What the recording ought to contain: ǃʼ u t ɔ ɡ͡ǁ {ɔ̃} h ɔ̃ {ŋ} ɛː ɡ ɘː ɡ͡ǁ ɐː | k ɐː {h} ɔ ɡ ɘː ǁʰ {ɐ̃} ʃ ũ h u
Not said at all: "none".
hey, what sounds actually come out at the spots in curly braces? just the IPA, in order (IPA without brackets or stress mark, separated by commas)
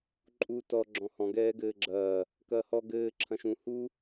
ɔ̃, ɡ, h, ɐ̃